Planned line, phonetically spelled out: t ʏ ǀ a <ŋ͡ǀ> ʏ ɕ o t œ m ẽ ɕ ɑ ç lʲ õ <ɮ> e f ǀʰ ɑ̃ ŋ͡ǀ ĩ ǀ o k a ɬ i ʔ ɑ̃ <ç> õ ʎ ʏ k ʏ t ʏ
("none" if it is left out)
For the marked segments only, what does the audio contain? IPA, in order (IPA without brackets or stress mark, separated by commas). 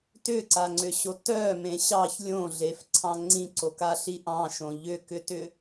ŋ͡ǀ, ɮ, ʃ